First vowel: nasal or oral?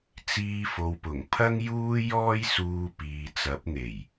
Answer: oral